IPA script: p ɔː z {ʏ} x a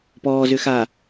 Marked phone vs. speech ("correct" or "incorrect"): correct